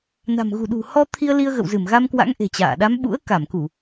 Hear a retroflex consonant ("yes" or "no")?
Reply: no